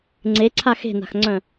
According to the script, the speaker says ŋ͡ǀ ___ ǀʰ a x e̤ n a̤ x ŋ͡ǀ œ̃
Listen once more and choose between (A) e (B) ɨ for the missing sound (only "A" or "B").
A